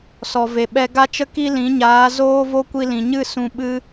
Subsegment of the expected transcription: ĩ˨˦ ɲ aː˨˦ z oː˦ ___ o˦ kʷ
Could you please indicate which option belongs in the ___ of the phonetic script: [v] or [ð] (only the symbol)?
v